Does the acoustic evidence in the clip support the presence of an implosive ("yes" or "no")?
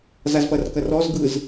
no